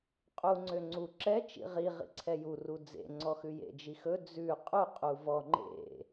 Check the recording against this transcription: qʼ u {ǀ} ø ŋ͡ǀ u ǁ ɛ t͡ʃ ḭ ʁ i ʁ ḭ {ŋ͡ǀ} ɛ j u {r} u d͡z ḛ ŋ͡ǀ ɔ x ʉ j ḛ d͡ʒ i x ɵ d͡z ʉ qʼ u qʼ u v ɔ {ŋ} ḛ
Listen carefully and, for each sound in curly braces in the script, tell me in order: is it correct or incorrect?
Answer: incorrect: ŋ͡ǀ, incorrect: ǀʰ, correct, incorrect: ŋ͡ǃ

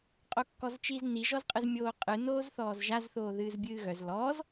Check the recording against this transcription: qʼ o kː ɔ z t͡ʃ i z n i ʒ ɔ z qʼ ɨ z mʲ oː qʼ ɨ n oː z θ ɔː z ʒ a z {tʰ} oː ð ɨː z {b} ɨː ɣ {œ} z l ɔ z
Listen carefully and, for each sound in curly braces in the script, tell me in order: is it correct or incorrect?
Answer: incorrect: θ, incorrect: bʲ, correct

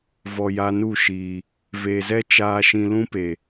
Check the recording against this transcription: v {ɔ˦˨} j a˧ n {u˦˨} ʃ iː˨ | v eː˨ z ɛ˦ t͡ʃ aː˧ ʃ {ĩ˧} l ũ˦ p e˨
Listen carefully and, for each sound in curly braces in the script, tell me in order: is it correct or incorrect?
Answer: incorrect: ɔ˨, correct, correct

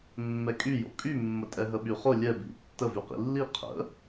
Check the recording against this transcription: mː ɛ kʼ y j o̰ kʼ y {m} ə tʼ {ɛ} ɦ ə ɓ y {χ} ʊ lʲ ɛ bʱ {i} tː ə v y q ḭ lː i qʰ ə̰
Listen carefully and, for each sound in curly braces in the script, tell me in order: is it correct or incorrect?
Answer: incorrect: mː, correct, correct, incorrect: ḭ

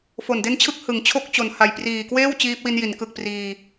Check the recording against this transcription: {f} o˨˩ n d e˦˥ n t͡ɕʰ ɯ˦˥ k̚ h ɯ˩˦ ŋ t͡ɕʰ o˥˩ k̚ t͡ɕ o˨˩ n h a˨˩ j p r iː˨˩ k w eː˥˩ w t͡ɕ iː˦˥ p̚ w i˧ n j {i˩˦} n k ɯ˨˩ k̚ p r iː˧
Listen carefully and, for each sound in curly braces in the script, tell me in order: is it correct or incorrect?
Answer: correct, correct

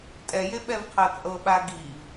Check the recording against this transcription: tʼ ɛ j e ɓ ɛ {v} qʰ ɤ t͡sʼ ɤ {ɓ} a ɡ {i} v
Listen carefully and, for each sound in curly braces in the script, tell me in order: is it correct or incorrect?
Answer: correct, correct, correct

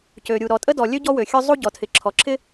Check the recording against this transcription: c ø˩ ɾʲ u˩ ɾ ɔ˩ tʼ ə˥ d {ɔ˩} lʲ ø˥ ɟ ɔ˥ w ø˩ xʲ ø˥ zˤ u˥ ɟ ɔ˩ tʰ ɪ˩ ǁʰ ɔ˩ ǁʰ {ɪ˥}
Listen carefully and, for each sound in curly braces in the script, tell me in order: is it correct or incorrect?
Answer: correct, correct

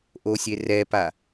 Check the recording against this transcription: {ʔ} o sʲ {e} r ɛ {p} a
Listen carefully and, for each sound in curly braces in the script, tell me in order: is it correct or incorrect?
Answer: correct, correct, correct

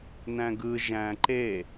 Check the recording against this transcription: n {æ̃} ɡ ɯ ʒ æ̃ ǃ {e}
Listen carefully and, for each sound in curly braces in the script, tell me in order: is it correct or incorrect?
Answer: correct, correct

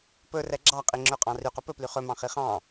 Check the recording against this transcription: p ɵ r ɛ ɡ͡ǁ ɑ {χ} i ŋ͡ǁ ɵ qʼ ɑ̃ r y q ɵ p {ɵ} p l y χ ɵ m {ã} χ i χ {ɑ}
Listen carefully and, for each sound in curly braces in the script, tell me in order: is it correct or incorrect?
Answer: incorrect: qʼ, correct, incorrect: ɑ̃, incorrect: ɑ̃

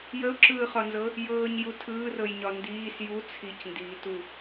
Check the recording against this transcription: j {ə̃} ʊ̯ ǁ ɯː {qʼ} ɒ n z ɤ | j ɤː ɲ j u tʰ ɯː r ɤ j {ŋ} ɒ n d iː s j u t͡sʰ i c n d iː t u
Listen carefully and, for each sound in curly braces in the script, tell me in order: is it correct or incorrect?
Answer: incorrect: ə, incorrect: χ, incorrect: ɲ

